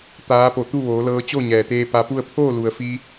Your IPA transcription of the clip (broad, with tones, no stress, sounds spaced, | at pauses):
t̪ aː˧˥ p o˧˩ t̪ u˥˨ ʋ oː˩˧ l ɤː˧ t͡ɕ o˥˨ ɲ ɛː˩ t̪ eː˧ p a˧ p u˥˨ ə̯ pʰ oː˥˨ l u˩ ə̯ f i˧